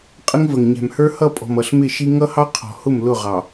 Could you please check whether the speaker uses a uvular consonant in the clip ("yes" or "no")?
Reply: yes